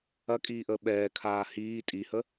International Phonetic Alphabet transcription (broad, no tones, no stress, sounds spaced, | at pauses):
ɐ kʼ iː ʔ əː ɓ ɛː kʰ aː h iː tʼ i h ə